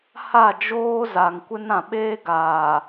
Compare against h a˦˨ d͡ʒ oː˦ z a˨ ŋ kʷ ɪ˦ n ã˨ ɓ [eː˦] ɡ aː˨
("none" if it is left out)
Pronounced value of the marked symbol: eː˦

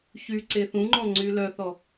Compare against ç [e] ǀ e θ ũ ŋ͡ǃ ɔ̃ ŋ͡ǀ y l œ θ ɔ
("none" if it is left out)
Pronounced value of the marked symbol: y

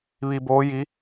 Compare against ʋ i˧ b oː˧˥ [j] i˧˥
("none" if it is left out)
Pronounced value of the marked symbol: j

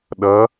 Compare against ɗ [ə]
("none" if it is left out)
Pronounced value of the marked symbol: ʌ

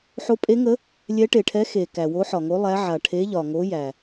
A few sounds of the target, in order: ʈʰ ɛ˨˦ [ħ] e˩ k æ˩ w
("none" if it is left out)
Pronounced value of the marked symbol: x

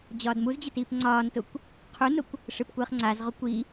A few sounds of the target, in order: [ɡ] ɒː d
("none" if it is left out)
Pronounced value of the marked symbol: d͡ʑ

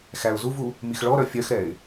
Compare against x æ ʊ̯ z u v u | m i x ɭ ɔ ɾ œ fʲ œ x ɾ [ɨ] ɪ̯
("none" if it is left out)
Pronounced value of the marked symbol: ɛ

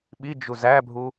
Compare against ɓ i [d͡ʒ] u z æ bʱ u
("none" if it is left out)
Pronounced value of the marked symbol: d͡ʒ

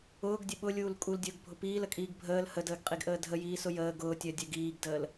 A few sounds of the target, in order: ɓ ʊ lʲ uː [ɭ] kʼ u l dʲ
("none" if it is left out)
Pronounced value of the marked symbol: l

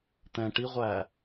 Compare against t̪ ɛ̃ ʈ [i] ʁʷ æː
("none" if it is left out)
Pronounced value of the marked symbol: i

